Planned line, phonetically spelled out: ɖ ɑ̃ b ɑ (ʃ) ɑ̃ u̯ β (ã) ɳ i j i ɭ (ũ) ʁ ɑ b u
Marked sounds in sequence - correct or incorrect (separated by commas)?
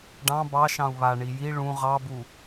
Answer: correct, incorrect, correct